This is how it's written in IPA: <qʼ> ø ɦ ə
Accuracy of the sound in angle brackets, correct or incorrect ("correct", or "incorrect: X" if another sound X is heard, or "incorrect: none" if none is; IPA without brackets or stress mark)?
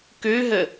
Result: incorrect: k